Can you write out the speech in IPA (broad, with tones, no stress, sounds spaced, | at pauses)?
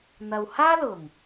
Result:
n̪ ɐ˨ w h aː˥ l ʊ˨˩ ŋ